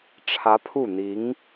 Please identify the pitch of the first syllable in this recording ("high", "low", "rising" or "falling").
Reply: rising